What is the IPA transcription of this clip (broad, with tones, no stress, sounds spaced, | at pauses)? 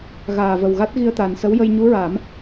ɣ aː˨˩ v ə˨˩ w ɣ a˦˥ t̚ ɣ i˧ ə̯ t̪ aː˨˩ n s ə˧˥ w j ə˧ j ɲ u˧˥ ɹ a˨˩˦ m